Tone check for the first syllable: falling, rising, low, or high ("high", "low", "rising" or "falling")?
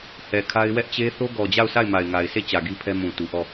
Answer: low